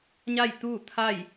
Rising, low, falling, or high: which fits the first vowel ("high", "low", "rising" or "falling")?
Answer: falling